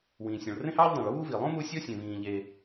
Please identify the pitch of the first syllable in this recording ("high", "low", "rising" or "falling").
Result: low